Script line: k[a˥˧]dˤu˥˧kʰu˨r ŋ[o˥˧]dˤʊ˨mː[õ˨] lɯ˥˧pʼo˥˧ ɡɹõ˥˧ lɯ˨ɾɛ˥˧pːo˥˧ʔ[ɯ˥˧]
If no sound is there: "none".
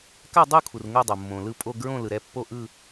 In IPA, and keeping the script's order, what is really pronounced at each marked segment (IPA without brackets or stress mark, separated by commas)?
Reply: a˥˧, o˥˧, õ˨, ɯ˥˧